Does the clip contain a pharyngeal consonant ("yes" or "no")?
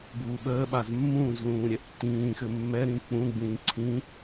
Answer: no